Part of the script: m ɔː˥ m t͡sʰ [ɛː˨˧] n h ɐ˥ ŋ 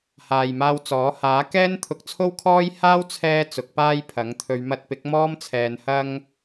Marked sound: correct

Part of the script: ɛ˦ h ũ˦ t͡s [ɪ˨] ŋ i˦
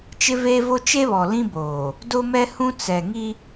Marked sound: incorrect: ɛ˨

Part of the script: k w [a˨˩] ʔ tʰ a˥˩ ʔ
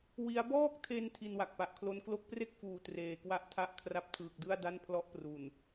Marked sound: incorrect: a˥˩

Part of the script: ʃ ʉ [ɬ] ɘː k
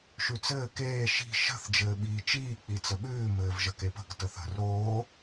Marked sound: incorrect: t͡s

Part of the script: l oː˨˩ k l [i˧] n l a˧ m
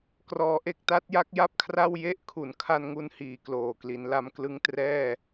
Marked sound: incorrect: i˩˦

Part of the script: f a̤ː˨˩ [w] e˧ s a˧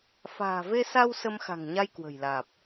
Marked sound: incorrect: v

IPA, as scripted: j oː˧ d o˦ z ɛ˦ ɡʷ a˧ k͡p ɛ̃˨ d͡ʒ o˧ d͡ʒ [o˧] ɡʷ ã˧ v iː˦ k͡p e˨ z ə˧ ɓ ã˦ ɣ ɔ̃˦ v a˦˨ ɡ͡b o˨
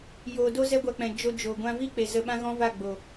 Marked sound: incorrect: o˨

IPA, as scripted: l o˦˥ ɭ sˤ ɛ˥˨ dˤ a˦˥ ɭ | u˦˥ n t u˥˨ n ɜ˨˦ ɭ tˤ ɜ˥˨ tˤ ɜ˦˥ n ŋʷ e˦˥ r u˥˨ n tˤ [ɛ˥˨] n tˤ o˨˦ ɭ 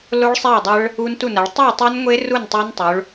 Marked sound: incorrect: ɛ˦˥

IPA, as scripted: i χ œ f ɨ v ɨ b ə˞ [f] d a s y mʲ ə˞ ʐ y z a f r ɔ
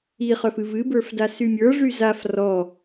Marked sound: correct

